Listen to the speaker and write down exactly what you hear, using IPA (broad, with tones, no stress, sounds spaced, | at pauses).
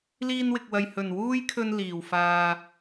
l iː˧ n w ɪ˨ k̚ w ɐ˨ j h ɵ˨˩ n w uː˥ j kʰ ɵ˧ n l iː˨˩ w f aː˧